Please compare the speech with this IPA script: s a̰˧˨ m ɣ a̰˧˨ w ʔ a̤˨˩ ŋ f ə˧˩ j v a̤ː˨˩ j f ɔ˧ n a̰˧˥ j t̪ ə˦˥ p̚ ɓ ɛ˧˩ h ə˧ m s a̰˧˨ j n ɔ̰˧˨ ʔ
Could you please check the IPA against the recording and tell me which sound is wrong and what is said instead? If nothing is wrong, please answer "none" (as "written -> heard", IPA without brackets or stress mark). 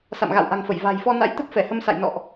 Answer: ɓ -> f